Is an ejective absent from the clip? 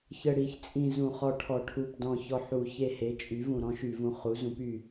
no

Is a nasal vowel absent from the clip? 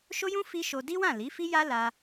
no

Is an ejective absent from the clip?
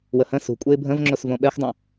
no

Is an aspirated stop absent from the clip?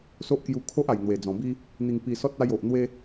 no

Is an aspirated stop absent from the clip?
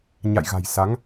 yes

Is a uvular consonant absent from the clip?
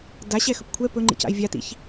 yes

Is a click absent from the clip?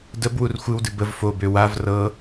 yes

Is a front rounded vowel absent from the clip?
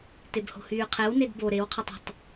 no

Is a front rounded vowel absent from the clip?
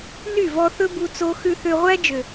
no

